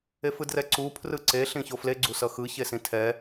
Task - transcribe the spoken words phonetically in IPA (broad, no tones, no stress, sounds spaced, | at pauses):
e f ɯ d r ɛ ǀ u pʰ r ɯ ǀ e ɬ ĩ ç o f l e ɡ͡ǀ u s ʌ x ɯ ç e s ĩ tʰ ɛ